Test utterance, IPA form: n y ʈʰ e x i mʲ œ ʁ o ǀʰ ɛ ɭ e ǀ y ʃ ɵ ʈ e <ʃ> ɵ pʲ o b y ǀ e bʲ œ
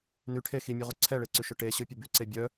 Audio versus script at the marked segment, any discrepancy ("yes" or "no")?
yes